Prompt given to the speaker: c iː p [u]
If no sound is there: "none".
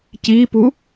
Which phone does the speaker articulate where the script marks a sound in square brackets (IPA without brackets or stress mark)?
u